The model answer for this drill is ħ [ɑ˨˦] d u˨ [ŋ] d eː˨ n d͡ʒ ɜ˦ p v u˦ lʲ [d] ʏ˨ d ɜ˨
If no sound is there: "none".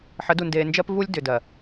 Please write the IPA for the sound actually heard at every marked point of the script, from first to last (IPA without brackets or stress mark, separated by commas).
ə˨˦, n, d